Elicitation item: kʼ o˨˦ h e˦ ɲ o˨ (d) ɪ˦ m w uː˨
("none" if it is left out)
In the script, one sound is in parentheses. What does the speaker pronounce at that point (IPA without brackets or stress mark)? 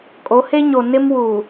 n